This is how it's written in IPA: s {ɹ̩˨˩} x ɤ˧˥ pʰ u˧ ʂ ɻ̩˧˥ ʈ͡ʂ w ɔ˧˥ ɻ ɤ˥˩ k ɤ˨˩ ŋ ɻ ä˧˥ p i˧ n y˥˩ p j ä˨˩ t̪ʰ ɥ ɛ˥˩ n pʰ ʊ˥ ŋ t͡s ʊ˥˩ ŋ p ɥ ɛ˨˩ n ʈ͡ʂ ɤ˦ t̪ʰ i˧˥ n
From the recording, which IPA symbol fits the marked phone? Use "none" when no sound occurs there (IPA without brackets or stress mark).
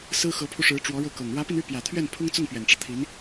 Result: ɹ̩˥